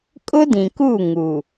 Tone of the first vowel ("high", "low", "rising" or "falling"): high